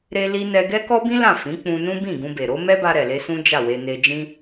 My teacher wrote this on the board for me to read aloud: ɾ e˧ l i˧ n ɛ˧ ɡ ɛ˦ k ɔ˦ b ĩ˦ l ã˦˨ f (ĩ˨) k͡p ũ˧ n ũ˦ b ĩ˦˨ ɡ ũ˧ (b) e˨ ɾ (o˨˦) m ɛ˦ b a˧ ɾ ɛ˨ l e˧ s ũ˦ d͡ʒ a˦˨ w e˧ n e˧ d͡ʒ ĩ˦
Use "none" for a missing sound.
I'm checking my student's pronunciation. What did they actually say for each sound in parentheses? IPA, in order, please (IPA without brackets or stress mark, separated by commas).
ĩ˨˦, b, o˨˦